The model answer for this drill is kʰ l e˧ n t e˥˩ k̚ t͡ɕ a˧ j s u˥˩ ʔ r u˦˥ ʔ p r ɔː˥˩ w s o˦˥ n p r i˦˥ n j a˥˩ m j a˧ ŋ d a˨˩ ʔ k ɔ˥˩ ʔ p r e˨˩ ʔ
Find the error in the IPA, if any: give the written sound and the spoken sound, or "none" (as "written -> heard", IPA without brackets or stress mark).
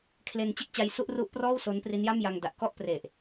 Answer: t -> t͡ɕ